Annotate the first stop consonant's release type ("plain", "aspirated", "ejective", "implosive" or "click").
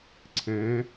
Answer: click